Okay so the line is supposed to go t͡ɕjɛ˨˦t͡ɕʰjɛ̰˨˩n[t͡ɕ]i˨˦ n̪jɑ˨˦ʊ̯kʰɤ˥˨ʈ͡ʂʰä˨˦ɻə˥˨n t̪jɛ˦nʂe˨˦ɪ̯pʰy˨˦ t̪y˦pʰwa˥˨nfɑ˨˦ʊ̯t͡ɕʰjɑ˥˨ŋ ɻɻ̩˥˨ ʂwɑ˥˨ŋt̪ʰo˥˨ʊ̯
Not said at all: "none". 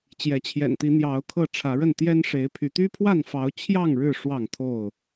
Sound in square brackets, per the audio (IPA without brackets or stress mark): t̪